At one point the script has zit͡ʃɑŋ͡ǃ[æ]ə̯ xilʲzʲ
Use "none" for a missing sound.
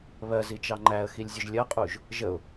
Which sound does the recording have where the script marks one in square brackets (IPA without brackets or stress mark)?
æ